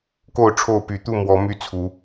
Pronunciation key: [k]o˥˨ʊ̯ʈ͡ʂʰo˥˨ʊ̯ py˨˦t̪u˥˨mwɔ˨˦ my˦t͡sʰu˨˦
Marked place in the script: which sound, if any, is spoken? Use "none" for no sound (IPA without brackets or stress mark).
k